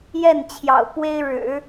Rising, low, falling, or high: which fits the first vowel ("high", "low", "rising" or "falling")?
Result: falling